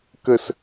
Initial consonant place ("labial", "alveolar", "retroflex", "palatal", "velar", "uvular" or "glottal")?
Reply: velar